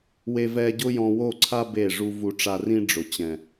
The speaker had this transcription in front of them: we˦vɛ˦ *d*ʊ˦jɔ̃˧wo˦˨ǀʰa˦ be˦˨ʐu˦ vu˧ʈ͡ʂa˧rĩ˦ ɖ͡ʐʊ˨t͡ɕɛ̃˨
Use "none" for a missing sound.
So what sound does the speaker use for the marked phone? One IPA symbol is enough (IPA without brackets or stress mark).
ɟ